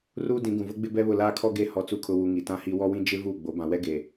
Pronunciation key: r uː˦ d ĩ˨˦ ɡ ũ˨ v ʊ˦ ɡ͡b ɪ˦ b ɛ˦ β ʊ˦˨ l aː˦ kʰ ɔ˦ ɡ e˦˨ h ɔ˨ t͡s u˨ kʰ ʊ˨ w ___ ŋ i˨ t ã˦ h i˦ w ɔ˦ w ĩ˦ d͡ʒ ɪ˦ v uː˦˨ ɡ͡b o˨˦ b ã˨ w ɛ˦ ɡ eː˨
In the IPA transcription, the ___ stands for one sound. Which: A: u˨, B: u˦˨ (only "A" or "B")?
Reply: A